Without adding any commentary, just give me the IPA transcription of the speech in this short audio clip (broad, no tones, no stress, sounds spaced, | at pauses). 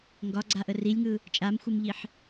ŋ ɡ ɒ ɡ͡ǀ a ʔ ə r i lʲ ŋ ɯ | t͡ʃʼ a m xʷ ɯ m ʎ i ħ